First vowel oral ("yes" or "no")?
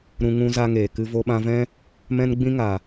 no